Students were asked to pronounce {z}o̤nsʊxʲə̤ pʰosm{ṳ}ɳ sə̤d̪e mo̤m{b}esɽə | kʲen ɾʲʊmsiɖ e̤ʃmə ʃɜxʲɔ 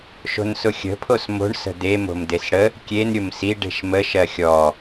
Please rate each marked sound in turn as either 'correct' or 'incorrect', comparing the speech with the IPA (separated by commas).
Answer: incorrect, incorrect, incorrect